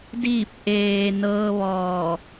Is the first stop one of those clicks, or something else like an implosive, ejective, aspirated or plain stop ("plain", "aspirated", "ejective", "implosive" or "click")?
plain